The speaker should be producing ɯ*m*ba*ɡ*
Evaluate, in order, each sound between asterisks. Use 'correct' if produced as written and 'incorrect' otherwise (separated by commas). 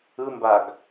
correct, correct